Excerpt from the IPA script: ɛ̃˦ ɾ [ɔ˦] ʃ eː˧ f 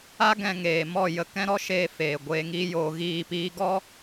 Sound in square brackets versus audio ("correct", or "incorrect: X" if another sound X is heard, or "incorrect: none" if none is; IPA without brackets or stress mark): correct